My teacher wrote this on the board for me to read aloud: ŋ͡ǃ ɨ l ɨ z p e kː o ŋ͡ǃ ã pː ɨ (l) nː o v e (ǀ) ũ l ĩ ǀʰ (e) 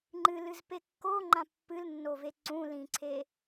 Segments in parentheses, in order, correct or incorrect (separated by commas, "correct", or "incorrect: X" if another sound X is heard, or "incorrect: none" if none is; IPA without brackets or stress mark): correct, correct, correct